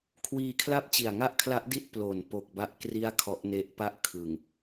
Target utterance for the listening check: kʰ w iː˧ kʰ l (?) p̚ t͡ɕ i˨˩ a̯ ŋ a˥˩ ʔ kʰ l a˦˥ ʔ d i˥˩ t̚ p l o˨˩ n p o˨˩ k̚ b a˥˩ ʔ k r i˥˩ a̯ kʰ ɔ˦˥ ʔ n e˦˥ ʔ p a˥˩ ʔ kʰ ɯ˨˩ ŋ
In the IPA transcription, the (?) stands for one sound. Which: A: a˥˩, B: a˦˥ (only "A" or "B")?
A